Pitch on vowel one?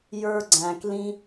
high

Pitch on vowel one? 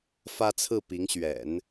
high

